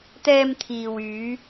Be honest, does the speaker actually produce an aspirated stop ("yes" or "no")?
yes